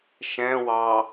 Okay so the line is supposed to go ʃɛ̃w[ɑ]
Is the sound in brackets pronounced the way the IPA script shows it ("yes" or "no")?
yes